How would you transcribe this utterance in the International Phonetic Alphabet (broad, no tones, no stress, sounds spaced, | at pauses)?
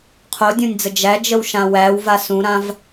qʰ o dʲ õ nʲ d͡z ə d͡ʒ æ d͡ʒ ə w ʃ ã w æ w v a s ũ ɾ ã v